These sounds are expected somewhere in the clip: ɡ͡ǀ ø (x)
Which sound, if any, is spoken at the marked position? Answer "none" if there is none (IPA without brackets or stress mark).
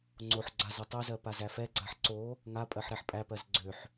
ħ